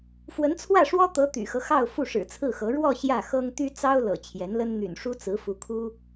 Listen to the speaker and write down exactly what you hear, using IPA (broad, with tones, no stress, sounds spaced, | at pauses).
f w ə˧˥ n t͡sʰ w ä˥˩ ʂ w ɔ˥ t̪ ɤ˧˥ t̪ y̰˨˩ x ɤ˦ x ɑ˥˧ ʊ̯ f u˥˩ ʂ ɻ̩˨˩ t͡sʰ ɹ̩˥˩ x ɤ˧˥ ɻ w ɔ˥˧ ɕ j ä˥˩ x ɤ˥ ŋ t̪ y˥ t͡s ɑ˥ ʊ̯ l ɤ̰˨˩ t͡ɕʰ j ɛ˧˥ n l ə˥ n n̪ y̰˨˩ n ʂ u˥ t͡s ɹ̩˧˥ f u˧˥ kʰ u˥